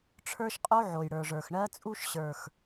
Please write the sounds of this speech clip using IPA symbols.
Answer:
ʈ͡ʂʰə˞˦ʃqʼo˦ ʕo˨jɽə˞˨ʐə˞˨x ɳɜ˦ t͡sʼu˦ʃɕə˞˨x

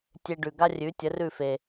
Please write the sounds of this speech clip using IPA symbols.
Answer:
tʲe˧ɖʉ˩ɡa˥rʲʉ˩˥ tʲə˩˥rʉ˥˩fe˩

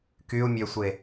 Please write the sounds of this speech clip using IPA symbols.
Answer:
kyu̯mʲøsʷe

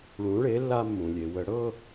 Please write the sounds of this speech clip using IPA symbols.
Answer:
ɭũ˨˥ɭe˨˥ lːa˧ mːũ˩lʲe˩ wə˧˩˧ɽɤ˥˧

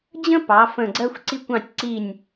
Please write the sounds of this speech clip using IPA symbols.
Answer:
d͡ʑə̃˥ pɑ˩˧fə̃˧˩ ɡ͡ǀɜ˧xʷǀi˧kʷɑ̃˧˩tʲ ǀi˧˩nʲ

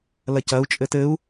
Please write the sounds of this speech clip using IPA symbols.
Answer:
lɐcɐu̯ t͡ʃʼɘtɘu̯

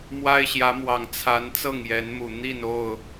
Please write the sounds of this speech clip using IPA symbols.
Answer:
mwa˦ɪ̯ɕjä˨˦mwɑ˨˩ŋ t͡sʰa˨˦n t͡sɤ˥˨ŋjɛ˨˦nmu˨˩ n̪i˥˨no˥˨ʊ̯

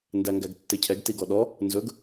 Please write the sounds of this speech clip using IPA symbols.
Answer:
ndæŋɡæɡtːɪcʰɛɡ tiɡɔɗɔ | nzɵɡ

